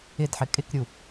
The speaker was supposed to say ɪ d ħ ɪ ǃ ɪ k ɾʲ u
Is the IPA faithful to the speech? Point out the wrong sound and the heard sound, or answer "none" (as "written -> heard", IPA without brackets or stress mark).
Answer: ǃ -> kʼ